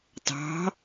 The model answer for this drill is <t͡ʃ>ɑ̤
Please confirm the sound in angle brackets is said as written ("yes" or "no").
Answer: no